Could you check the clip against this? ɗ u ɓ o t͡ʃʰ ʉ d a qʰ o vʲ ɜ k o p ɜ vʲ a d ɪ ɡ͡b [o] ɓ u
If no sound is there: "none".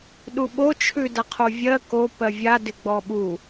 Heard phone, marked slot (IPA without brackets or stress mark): ɔ